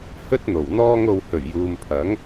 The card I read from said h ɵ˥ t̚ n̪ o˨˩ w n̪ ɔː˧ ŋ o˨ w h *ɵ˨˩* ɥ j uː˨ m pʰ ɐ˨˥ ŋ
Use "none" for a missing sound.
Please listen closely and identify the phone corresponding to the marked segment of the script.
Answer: ɵ˨˩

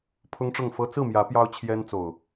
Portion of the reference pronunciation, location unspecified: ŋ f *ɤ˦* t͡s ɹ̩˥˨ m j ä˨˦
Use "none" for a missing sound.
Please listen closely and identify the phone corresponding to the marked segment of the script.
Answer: ɤ˦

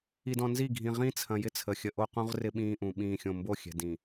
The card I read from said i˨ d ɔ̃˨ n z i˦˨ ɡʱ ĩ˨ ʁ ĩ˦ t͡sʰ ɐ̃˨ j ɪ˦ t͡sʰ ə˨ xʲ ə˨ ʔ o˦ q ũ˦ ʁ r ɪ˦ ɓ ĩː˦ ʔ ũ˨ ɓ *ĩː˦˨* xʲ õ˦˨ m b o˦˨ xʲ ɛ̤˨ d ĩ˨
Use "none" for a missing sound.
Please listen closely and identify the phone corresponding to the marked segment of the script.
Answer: ĩː˦˨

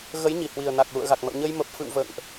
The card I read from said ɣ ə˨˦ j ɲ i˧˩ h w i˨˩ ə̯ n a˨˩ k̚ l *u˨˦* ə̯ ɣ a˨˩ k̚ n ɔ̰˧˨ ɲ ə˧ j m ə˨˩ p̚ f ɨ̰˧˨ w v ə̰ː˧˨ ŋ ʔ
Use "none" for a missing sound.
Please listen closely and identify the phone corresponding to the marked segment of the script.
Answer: ṵ˧˨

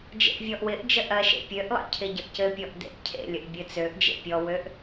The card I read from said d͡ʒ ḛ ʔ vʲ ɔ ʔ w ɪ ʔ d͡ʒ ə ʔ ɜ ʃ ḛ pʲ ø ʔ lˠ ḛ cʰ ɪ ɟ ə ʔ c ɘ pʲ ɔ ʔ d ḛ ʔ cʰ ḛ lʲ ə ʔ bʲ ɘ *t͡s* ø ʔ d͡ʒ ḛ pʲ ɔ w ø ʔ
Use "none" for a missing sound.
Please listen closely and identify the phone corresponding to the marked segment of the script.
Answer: t͡s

